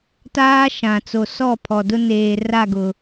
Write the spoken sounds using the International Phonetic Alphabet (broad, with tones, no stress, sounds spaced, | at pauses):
t aː˦ ʃ ã˨ t͡s o˨ s ɔ˦˨ pʰ ɔ˨ d ʊ˦ n eː˨ r a˦˨ ɡ ʊ˨